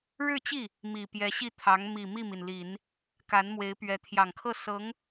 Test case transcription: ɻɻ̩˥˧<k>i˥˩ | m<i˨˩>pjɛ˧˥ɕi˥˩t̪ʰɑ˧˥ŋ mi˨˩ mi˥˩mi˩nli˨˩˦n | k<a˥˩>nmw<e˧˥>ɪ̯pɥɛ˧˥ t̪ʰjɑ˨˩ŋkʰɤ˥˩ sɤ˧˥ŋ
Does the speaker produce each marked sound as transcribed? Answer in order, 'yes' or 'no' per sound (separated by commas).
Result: no, yes, no, yes